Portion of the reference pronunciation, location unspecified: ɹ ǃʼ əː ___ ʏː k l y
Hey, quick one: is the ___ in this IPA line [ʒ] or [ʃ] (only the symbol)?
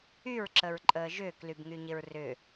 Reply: ʒ